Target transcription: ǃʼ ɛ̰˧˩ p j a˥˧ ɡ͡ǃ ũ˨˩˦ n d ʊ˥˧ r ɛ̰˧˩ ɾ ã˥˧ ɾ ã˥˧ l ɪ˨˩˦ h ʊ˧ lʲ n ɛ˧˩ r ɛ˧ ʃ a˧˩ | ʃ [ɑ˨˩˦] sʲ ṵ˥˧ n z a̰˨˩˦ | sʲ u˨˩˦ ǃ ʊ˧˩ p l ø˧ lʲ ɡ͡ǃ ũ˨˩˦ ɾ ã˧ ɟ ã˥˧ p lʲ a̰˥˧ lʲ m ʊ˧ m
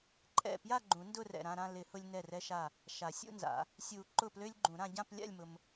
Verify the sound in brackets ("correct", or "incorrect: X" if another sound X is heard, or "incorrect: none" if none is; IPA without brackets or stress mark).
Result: incorrect: a˨˩˦